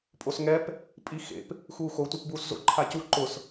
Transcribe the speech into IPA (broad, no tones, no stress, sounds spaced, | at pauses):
pʼ o s ŋ ɛ p | pʼ i x ḛ p | x uː x o tʷ e p b uː s z o̰ ǃʰ a c u ǃ ʊ s